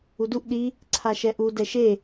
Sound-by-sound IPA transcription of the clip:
uduʔ ɗi | ǀʰaʃɛʔu dɛʃe

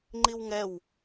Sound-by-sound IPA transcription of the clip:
ŋ͡ǃiwŋɛw

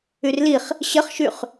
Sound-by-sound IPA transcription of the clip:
yrliχ | ɕəχʃyχ

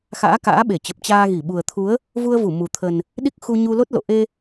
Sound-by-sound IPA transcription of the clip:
xa̰ː˧˥ka̰ː˧˥ɓe˧˩t͡ɕə˨˩p̚ t͡ɕaː˧ɣi˧˩ ɓu˨˩ə̯t̪ʰu˨˦ə̯ | vu˧ə̯vu˧˩ mu˨˩t̪ʰə˨˩n | ɗi˦˥k̚xu˧ ɲu˧lo˦˥t̚ lo̰˧˨ʔe˧

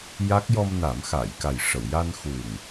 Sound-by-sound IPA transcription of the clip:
ja˦˥k̚ jɔ˧mna˨˩˦m xa˨˩˨jka˨˩j ʂə˨˩˨wja˧nxu˨˩ŋ

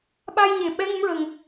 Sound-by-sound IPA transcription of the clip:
ɓa˧jɲe˨˩˨ ɓɛ˧˥ ŋə˧˥mɹə˨˩ŋ

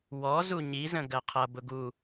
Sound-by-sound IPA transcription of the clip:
wɔ zuɲi zə̃ɡɜqʰʌ bʊɡu

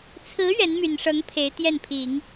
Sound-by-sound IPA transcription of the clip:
t͡sʰɹ̩˧˥ ɥɛ˧˥nmy˨˩nʂɤ˧˥ŋ pʰe˧˥ɪ̯t̪jɛ˥˩npʰi˨˩˦ŋ

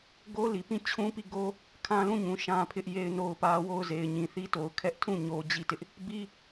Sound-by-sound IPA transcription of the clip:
ɡo˦li˨pĩ˦˨ t͡ɕʰũ˦pi˦˨ɡo˦ | kʰã˦lũ˦˨ɲũ˨ ʃã˦pʰɪ˦ʔ je˦ɪ̯no˦ʊ̯pä˦ wo˦˨ʊ̯ ze˨ɪ̯ ɲĩ˨θi˦to˨ʊ̯ kʰɛ˦ʔtʰũ˦˨ ɲo˦ d͡ʑi˦˨tɪ˦ʔ | bi˦

